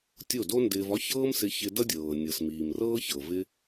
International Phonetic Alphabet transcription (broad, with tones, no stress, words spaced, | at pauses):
tʲo˦˨do˦ndɪː˧vɒ˦ çɤː˦msɪ˧ çɪ˧dʌ˦dʲɤː˨ nʲɤ˨smiː˨mrɤː˦çɤ˨ vɪ˦